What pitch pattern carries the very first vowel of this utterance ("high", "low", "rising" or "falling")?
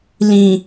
low